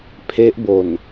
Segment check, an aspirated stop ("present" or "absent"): present